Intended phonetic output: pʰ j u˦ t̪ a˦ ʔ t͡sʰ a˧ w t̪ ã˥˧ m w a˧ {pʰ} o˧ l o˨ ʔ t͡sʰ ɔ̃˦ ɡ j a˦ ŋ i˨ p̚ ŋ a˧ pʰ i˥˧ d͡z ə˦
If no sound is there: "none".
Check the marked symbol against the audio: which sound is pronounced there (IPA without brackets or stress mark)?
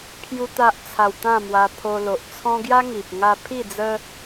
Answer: pʰ